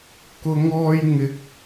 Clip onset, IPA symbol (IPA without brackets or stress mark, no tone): k